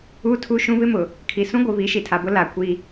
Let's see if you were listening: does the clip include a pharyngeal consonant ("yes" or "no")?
no